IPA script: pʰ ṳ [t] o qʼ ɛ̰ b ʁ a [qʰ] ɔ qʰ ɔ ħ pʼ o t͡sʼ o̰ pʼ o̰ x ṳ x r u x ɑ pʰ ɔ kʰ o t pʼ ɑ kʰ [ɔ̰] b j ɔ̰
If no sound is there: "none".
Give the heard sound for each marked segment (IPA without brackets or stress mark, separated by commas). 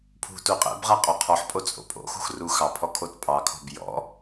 t, qʼ, ɔ̤